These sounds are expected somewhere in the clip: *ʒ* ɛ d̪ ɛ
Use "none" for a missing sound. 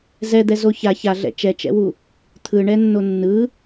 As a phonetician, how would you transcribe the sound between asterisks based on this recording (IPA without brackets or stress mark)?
z